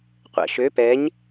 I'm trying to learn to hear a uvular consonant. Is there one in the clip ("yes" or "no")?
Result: yes